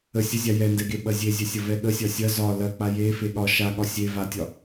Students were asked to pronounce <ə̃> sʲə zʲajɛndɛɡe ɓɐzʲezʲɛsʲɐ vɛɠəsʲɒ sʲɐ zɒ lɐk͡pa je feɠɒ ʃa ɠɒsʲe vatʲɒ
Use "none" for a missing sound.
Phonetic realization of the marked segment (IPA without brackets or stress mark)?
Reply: ə